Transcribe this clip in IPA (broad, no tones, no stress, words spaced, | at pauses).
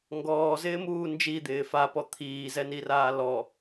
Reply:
ŋɡɔːzɪːmuː nd͡ʒid̪ɪː fapɔ t̪ʰiːzɛniraː lɔ